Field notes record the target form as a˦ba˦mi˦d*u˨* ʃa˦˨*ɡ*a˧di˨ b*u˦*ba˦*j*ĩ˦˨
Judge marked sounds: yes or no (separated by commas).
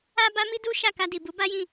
no, no, no, yes